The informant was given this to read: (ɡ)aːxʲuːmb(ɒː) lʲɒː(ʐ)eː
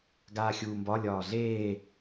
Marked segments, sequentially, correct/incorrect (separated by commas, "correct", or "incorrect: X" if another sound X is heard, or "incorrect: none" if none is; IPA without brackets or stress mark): correct, incorrect: ɒ, incorrect: ɮ